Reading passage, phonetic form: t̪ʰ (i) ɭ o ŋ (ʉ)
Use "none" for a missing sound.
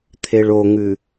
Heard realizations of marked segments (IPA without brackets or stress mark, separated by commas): e, ʉ